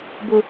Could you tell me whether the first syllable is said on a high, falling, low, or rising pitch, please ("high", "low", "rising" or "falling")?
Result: high